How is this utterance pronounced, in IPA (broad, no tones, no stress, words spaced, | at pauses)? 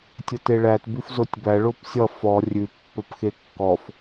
tʲəteɭæt bʉfzotʲbæ ɭopsʲʌ fɔ rʲʉ pːɒpxekːɔf